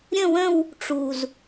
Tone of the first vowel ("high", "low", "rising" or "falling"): falling